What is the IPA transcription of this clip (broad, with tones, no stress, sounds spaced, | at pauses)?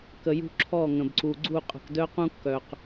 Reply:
k ə˨ j ṳ˦ ǁʰ ɔ˦˨ ŋ ə̃˨ b ǀ u˨ ɡ͡ǀ u˦˨ qʼ ə̤˨ k d œ˦ q ũ˦ kː œ˨ q